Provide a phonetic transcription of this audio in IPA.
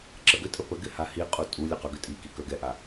ǁ ə ɡ ʏ tʼ ə p ə ɡ ɪ h a h i qʼ u tʼ u lʲ ə q œ ɡ ʏ tʼ i k i k œ ɡ ɛ ʔ a

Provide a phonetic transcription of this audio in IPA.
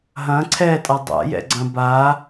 ɦ ɐ̃ ǀʰ ɛ tʼ a dˤ a̰ j ɛ̰ ɡ͡ǀ ɐ̃ b a

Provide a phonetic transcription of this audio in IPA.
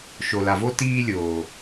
ʃ o˨ l a˨ v o˦ t iː˧ lʲ oː˨

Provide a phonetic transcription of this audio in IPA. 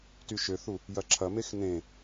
t y ʃ ø θ u | j ɐ ǁʰ ɐ m e x n ẽ

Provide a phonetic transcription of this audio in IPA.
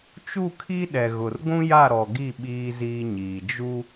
t͡ʃ u˦˨ kʰ i˦ ɗ ɛ˨ ɣ ʊ˨ r ɡʷ ũ˦ j a˦˨ ɾ ɔ˨ ɡ i˦˨ ɓ iː˦ z iː˦ ɲ iː˨ d͡ʒ u˦

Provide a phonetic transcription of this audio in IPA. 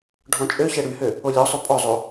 ɖʱ ɔ̃ t͡ʃʼ ø ç ɛ ɽ y h ø | o lʲ ɔ sˤ ø pʼ ɔ zˤ o

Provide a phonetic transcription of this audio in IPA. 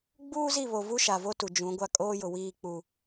ɡ͡b uː˦ z i˦˨ β o˨ v u˦ ʃ a˨ v o˦ t u˨ d͡ʒ ũ˨˦ ɡʷ a˦ kʼ oː˦ j ʊ˨ w iː˦˨ k͡p u˨

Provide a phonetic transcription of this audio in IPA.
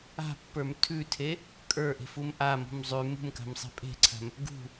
a̤ pː ə˞ m tʰ ʉ tʰ e | kʼ ə˞ ʔ e̤ f u m ʔ a m ṳ m zˤ ʉ m ṳ m k a̤ m sˤ e̤ pʼ e̤ ǀʰ a̤ m | ɡ ṳ

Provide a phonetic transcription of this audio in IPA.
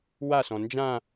w a s ɔ̃ n d͡ʒ ã

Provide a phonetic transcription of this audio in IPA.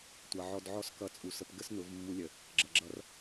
tʷ ʌ˨ ʕ ɔ˧ d ʕ ɔ˦ s k ʌ˧ t͡sʼ u˨ s ə˧ p ɡ ə˦ s n ʊ˨˦ v mː u˧ lʲ ə˨ | ɡ͡ǁ ʌ˨ ɡ͡ǁ ʌ˧ r

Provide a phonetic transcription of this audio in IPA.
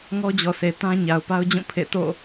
ŋ ɔ˦ d͡ʑ ɔ˨ sʰ e˨ t ã˦ ɲ a˨ ʊ̯ p a˦ ʊ̯ d͡ʑ ũ˦˨ pʰ ḛ˦˨ t o̰˦˨

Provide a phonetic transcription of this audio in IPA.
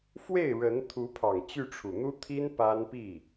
f w e˥˩ ɪ̯ ɻ ə˧˥ n t̪ʰ u˧˥ pʰ ɑ˨˩ ŋ t͡ɕ y˥˩ ʈ͡ʂʰ u˨˩ n̪ u˥ t̪ʰ i˥ n p a˥ n p i˥˩

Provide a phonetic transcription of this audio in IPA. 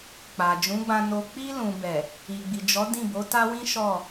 k͡p a˨ d͡ʒ ũ˨˦ ɡ͡b ã˧ n o˧ k͡p i˧ l ũ˨ b ɛ˨ | i˨ ɡ͡b i˨ d͡ʒ ɔ˨˦ d ĩ˦˨ b o˨˦ t a˦ w ĩ˦ ʃ ɔ˦˨

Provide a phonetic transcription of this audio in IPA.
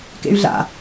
k ḛ y̯ ɮ a̰

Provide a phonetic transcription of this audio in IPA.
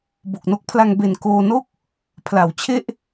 b o˨˩ k̚ n o˦˥ k̚ pʰ l a˧ ŋ b e˨˩ n k oː˧ n o˥˩ k̚ | pʰ l a˩˦ w t͡ɕʰ e˥˩ ʔ

